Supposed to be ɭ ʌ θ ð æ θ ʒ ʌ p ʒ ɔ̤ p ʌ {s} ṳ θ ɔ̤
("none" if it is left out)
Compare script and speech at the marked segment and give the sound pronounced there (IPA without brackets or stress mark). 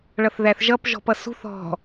s